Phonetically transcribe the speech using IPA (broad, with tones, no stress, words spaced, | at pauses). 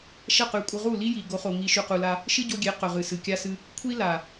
ʃɐ˦˨qʉ˨˦kʷʼɨ˧ ʁu˦˨ li˦ji˨ ɡo˨˦χo˨ ŋi˧ ʃʉ˧qu˧la˦ | ʃɨ˦ɟo˧ɡʲe˨˦ qɵ˨ʁɨ˨ sɨ˨ kʲa˦sɨ˦ | kʷʰi˦ la˨